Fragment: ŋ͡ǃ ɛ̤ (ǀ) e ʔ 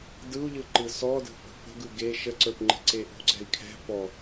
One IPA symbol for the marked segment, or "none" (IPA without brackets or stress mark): ǀ